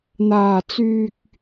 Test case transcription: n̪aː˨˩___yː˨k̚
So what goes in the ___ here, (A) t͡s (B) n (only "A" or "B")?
A